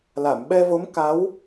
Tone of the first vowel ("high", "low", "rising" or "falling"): low